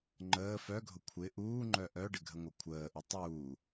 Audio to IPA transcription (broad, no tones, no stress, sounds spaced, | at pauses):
ŋ͡ǃ əː f œ ɡʱ ʊ kʷʰ ɪ ʔ uː ŋ͡ǃ œ ʔ œ ɖ ɪ ɡʱ ə ŋʷ œ kʷʰ əː ʔ u tˤ uː